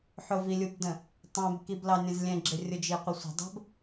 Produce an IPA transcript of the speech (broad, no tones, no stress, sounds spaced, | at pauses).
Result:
ħ ʊ v i lʲ u b d ə̃ | tˤ ɛ̃ b k i b l ɑ nʲ ə̃ z lʲ ɛ̃ ɡ͡ǁ ɪ rʲ ʊ d͡ʒ i qʷ ə sʷ ə̤ dˤ ə̤ b